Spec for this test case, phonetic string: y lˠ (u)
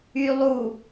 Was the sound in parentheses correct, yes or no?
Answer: yes